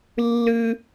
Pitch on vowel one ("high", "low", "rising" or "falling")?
high